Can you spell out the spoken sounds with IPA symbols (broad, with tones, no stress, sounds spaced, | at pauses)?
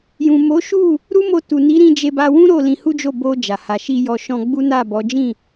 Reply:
j ũ˨ m o˨˦ ʃ u˦˨ | ɾ u˦ m o˧ t u˨ n i˨˦ ɾ ĩ˧ d͡ʒ e˧ b a˧ w ũ˦ ɾ o˦˨ l ĩ˧ h u˦ d͡ʒ o˦˨ b o˧ d͡ʒ a˨ h a˨ ʃ i˧ j ɔ˧ ʃ ɔ̃˧ ɡ͡b u˦ n a˦˨ b ɔ˨˦ d͡ʒ ĩ˦˨